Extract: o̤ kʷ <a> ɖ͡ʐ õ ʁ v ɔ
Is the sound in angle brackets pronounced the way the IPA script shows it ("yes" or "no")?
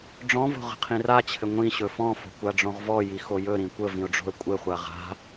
yes